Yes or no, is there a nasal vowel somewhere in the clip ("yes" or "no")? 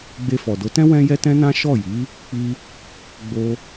yes